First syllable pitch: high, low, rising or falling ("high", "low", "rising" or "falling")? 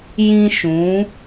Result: high